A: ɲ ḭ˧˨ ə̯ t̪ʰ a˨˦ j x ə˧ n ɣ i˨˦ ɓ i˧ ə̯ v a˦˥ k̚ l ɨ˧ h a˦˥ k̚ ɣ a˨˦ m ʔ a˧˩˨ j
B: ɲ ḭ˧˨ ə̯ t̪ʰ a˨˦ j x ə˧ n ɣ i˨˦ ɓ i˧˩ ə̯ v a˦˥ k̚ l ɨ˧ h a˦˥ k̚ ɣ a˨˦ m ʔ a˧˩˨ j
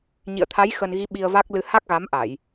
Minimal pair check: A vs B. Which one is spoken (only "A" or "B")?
A